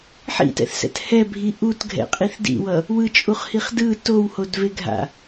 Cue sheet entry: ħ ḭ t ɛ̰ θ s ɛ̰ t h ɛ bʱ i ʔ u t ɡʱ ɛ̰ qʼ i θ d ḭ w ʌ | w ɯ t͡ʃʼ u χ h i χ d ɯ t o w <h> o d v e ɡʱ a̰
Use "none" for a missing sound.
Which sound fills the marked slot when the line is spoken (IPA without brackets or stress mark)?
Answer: h